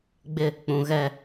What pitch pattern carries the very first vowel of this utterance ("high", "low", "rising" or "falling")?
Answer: falling